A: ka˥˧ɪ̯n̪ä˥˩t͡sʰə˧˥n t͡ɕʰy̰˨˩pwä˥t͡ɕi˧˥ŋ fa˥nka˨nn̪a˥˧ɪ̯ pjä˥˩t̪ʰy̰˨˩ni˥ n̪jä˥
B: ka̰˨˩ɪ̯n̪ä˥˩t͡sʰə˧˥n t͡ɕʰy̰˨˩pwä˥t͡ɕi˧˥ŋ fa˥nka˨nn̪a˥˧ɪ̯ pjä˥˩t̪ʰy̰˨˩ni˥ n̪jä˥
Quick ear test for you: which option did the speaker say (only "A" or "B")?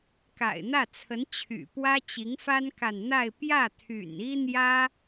B